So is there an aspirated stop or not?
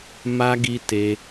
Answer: no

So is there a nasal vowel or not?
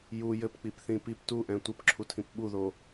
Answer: yes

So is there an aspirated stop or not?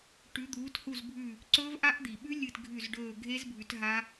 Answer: no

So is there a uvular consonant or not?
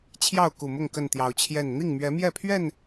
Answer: no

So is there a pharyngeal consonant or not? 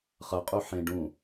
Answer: yes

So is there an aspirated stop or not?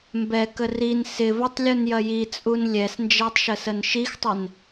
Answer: no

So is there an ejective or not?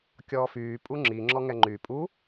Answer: yes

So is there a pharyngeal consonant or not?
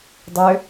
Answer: no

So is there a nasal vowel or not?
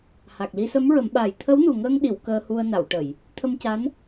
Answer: no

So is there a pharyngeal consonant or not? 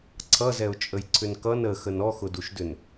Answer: no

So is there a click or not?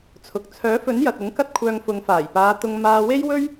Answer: no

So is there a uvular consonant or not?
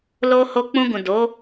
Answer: no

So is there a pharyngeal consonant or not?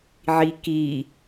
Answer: yes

